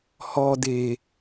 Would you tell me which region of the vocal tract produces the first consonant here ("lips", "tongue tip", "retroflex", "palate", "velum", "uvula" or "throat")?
throat